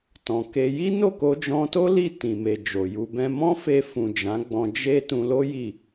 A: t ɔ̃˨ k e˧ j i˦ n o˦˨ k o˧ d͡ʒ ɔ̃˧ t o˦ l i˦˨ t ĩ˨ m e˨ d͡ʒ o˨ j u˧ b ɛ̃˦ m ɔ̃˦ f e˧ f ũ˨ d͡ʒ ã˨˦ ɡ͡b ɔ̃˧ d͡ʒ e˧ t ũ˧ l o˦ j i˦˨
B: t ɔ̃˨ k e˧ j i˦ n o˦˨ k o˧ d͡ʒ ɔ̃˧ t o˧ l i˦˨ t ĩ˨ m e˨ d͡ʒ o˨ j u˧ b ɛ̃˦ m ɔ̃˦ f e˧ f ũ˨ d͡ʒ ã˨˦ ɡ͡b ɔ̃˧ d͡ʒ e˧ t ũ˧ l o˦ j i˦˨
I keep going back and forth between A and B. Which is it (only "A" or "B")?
A